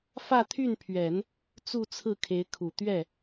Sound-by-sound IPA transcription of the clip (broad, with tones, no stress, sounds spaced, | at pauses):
f ä˥˧ t̪ʰ y˥˩ n pʰ ɥ ɛ˨˩˦ n | t͡s u˥˧ t͡sʰ ɹ̩˥˩ kʰ e˧˥ ɪ̯ kʰ u˨˩ t̪ ɥ ɛ˥˩